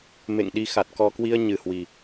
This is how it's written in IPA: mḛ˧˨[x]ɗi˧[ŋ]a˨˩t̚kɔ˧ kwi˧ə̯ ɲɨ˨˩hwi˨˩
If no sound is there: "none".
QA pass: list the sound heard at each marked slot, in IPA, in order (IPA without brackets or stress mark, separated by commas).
ŋ, x